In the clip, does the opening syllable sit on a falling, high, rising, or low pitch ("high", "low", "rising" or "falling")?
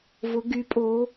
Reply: rising